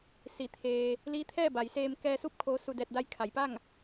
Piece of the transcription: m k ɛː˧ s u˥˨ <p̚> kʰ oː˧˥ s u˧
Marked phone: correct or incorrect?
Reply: correct